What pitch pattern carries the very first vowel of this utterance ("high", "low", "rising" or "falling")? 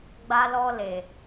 high